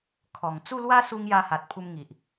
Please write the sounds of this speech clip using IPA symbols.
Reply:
kʰɔ˨˩ŋ t͡su˥˧lwa˦su˧ŋ ja˧ha˨t̚pʰu˧mŋi˨ʔ

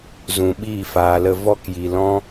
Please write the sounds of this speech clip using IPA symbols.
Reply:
zũ˨ɓiː˦˨faː˨lə˧ vɔ˦kji˨lɔ̃˦

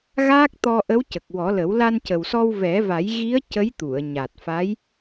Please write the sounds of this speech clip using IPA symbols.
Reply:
ɣaː˦˥k̚ t̪ɔ˧ʔə˧˥w cə˨˩k̚wɔ˨˩˦lə˨˩˦w la˧ncə˨˩wsɔ˧w vɛ˨˩˦va˨˩˦jɣi˧˥ə̯ cə˧˥jt̪u˨˩˨ə̯ ɲa˨˩t̚fa˧˥j

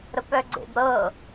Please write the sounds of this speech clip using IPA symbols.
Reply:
ɾəpœɡ͡ǀḛbɾɤ

